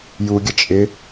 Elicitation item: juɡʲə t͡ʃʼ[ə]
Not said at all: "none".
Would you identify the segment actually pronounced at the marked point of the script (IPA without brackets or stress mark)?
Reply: ɪ